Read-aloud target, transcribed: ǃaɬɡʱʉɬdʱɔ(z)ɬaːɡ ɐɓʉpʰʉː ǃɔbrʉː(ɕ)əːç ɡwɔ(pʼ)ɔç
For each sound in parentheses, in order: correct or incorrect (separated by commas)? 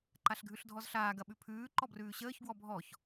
correct, correct, incorrect